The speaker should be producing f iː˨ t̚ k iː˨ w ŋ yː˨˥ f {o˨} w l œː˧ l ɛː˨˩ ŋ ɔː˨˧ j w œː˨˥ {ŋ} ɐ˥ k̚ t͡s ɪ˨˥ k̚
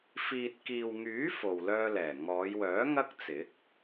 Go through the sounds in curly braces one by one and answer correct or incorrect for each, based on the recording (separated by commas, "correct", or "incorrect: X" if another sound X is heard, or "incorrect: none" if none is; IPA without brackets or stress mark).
correct, correct